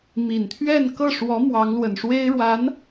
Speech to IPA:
m i˨˩ n t̪ʰ ɥ ɛ˥˧ n k ɤ˥˩ ʂ w ɔ˧˥ m w ɑ˧˥ ŋ l w ə˨˩ n ʂ w e˥ ɪ̯ ɻ w a˧˥ n

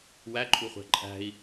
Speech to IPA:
w æ ǃʼ u χʷ æ̤ ǃʼ æ̤ i̯

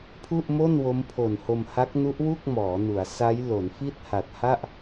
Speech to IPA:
pʰ u˥˩ ʔ m o˥˩ n w o˦˥ m pʰ o˨˩ n h o˧ m h a˦˥ k̚ n u˦˥ ʔ w u˥˩ k̚ m ɔː˩˦ n u˩˦ a̯ s a˦˥ j l o˩˦ n f i˥˩ t̚ h a˨˩ t̚ h a˥˩ ʔ

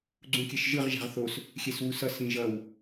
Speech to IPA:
ɡ͡ǀ ũ kʲ ɛ ʃ ʒ ɯ ʁ ʒ a̤ ʁ θ o s | xʲ ɛ s w u s ʌ s ĩ ʒ ʌ w

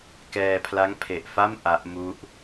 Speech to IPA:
k ɛː˧ pʰ l a˦˥ ŋ pʰ e˨˩ ʔ f a˥˩ m ʔ a˦˥ ʔ m u˥˩ ʔ

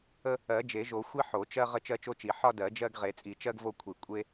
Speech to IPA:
ə˦ | ɜ˨˩˦ d͡ʒ e˨˩˦ ʒ o˨˩˦ xʷ i˦ ħ o˨˩˦ t͡ʃ ɜ˦ ʁ ə˦ t͡ʃ ɜ˦ t͡ʃ o˦ t͡ʃ i˨˩˦ ħ ɒ˦ d ɜ˨˩˦ d͡ʒ ɜ˦ ɡ ʁ e˨˩˦ t͡sʼ i˨˩˦ t͡ʃ ɜ˦ ɡ v o˦ kʷʰ i˨˩˦ kʷʼ e˦

